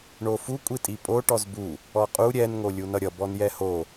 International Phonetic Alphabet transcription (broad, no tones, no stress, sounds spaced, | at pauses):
ɳ o f u kʷʼ i tʼ i pʼ o ʈ ɔ z b u | ɔ qʼ u ɾʲ ɛ n ŋ o lʲ u n ʌ ɾʲ ʌ b ɔ n j ɛ h o